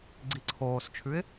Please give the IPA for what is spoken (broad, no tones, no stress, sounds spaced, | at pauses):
ɡ͡ǀ i ǀʰ oː s t͡ʃʰ ʉ ɪ̯